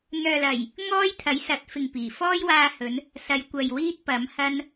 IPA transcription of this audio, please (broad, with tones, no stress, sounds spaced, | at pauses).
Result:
n̪ œː˨ l ɐ˨˩ j | ŋ ɔː˥ j t̪ʰ ɐ˨˥ j s ɐ˨˥ t̚ f ɪ˨ ŋ p iː˨˩ f ɔː˥ j w aː˧ h ɵ˨˧ n | s ɐ˨˧ j kʷ ɐ˨ j w iː˥ t̚ p ɐ˨˥ m h ɐ˥ n